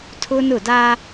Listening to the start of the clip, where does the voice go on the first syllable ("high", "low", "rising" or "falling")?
high